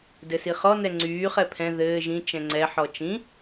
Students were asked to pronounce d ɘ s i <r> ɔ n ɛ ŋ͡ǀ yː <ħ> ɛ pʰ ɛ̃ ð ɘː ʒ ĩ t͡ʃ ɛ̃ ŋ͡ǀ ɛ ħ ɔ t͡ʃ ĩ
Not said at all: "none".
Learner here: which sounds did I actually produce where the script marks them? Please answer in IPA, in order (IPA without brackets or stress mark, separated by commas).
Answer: χ, χ